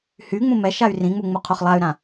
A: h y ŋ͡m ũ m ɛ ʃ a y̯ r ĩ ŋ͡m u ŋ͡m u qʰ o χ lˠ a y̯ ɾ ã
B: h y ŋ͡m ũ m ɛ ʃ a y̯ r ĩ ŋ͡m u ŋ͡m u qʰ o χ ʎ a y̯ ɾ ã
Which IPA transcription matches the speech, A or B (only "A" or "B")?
A